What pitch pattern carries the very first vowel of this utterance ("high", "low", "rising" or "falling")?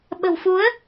low